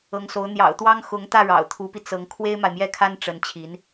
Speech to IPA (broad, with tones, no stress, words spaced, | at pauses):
ɤ˧˥ŋso˧˥ʊ̯ n̪jɑ̰˨˩ʊ̯ t̪wɑ˥ŋ xʊ˧˥ŋt̪ä˥˩ ɻɑ̰˨˩ʊ̯t̪ʰu˧˥pi˧ t͡sɤ˧˥ŋ kʰwe˥ɪ̯ma˨ɪ̯mjɛ˥˩kʰa˥n ʈ͡ʂə˧˥n t͡ɕʰi˧˥n